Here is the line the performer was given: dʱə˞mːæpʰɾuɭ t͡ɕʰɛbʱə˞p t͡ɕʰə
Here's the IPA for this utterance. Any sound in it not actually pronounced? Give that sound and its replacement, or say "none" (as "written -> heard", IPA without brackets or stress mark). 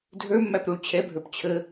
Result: pʰ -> p